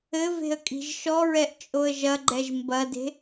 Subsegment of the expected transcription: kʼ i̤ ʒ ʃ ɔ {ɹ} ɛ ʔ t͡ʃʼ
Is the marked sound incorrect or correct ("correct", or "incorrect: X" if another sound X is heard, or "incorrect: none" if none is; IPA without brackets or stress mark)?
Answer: correct